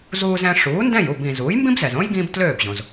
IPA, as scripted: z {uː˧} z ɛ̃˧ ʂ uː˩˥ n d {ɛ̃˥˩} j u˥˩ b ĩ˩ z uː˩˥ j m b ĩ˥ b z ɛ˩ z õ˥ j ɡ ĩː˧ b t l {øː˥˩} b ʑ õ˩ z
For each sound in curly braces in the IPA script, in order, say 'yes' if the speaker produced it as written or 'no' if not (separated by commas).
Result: yes, yes, yes